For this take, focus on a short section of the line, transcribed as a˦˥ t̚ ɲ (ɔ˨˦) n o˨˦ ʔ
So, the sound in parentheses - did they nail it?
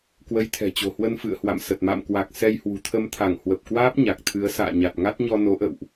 no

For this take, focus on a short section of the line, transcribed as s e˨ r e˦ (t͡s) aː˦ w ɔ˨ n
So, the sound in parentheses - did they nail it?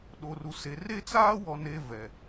yes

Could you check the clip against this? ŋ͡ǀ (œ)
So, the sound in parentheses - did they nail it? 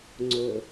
no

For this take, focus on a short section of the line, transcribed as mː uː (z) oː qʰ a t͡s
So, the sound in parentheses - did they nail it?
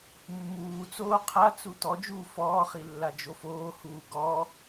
no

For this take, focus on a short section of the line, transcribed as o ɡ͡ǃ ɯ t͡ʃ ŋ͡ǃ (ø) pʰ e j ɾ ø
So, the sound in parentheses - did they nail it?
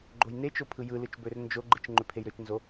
yes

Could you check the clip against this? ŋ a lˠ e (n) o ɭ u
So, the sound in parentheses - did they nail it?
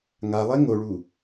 no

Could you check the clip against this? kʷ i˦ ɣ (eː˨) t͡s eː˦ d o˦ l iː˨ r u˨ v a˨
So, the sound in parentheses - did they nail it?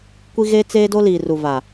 no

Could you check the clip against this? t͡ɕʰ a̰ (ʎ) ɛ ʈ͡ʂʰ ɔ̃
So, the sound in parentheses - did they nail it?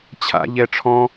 yes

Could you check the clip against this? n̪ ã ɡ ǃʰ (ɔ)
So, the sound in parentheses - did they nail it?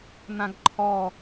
yes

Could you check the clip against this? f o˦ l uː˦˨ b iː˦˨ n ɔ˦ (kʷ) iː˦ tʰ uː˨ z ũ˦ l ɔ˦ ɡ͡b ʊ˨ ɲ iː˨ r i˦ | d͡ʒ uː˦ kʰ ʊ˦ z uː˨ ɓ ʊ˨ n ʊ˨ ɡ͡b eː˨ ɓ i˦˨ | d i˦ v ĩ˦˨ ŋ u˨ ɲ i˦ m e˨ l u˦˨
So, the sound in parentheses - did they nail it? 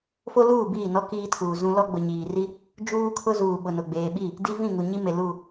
no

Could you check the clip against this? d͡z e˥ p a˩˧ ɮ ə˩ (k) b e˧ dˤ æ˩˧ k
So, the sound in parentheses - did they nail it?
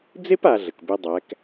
yes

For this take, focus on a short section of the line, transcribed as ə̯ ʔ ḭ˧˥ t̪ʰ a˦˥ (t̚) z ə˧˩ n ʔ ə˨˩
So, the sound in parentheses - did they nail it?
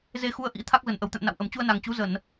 no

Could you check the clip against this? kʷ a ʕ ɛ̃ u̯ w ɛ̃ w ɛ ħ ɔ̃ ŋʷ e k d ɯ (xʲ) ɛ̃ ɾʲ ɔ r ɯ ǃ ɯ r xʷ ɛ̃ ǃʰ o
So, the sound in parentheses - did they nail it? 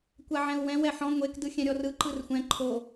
yes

